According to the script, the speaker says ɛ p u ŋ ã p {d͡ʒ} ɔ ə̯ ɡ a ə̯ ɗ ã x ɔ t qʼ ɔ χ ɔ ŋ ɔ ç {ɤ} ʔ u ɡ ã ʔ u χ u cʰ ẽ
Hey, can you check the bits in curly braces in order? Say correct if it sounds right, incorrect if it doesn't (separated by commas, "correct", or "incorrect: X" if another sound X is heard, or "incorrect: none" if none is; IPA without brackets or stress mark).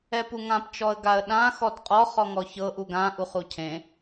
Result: incorrect: t͡ʃ, correct